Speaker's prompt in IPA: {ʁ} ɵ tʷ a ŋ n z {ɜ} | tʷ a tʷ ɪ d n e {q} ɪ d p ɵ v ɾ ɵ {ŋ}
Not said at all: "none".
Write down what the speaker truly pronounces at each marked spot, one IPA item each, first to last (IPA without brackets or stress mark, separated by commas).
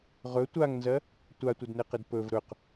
ʁ, ɜ, q, q